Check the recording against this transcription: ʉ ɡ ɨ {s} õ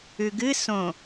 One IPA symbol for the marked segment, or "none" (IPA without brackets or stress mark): s